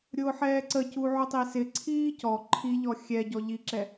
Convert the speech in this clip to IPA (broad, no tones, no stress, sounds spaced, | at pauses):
ɾʲ ʊː ħ ɛː ǀ ə c u ʕ ʊ tˤ i s ɪ ǀʰ iː c ɔ ǃʰ i ʎ ɔ xʲ ɛ ɟ ɔ ʎ i ǁ ɛ